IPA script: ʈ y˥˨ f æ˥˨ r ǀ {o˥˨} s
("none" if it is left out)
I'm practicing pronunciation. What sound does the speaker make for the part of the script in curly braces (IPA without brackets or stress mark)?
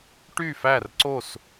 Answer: o˥˨